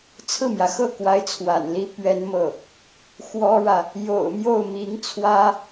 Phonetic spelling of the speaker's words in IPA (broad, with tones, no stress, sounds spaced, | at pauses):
t͡sʰ ɹ̩˥˩ m j ä˩ x ɤ˥˩ k w a˧˥ ɪ̯ t͡sʰ w a̰˨˩ n l i˥ p ɥ ɛ˥ n m ɤ˥˩ | x w ɔ˥ ɻ ä˨ | j o̰˨˩ ʊ̯ m j o˥˩ ʊ̯ m i˧˥ ŋ t͡sʰ w ä˥